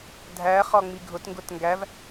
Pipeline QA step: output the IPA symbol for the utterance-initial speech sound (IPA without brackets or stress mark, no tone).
dʱ